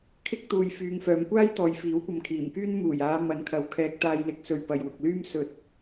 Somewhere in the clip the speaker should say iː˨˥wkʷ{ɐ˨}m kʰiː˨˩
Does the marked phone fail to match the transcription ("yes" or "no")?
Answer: no